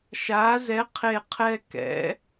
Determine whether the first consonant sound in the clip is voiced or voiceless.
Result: voiceless